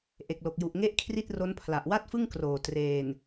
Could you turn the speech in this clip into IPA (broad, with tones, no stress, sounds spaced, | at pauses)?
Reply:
ʔ e˨˩ k̚ l o˨˩ k̚ j u˨˩ ʔ ŋ e˥˩ ʔ kʰ r i˥˩ t̚ r o˦˥ n pʰ l a˨˩ ʔ w a˥˩ t̚ f ɯ˥˩ ŋ k r oː˨˩ t r eː˨˩ n